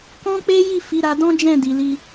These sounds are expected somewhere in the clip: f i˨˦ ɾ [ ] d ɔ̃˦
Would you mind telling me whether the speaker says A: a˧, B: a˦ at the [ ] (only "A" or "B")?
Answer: A